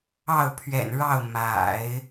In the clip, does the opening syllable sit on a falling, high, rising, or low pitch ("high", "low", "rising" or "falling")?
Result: falling